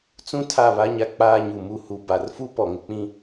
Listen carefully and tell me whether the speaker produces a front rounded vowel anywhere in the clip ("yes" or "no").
no